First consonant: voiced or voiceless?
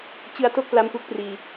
voiceless